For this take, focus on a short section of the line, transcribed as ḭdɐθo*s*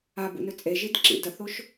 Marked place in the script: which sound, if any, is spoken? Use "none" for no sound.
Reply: ʃ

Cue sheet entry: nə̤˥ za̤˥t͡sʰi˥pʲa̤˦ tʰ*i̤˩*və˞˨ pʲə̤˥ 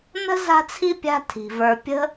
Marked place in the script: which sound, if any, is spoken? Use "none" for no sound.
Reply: i̤˩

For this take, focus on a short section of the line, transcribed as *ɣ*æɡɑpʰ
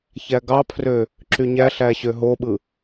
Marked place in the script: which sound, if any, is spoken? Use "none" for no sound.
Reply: ç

